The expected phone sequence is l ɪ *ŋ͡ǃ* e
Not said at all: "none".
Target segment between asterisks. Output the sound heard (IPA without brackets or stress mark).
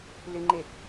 ŋ͡ǃ